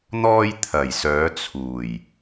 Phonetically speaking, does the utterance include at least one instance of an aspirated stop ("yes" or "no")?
yes